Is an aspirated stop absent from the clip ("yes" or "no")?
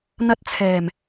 no